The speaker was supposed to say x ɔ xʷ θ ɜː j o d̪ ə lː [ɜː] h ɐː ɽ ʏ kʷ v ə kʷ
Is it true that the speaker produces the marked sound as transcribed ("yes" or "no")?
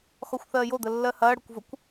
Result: no